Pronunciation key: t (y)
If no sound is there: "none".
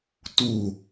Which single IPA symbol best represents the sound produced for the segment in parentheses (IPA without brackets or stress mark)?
u